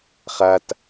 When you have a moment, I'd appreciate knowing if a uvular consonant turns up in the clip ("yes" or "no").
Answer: yes